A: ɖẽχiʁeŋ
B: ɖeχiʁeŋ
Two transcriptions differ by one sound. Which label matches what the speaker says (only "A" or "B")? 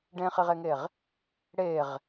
A